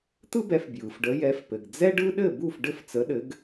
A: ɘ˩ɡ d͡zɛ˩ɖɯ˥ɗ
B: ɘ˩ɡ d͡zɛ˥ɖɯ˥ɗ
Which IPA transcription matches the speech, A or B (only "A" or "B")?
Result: B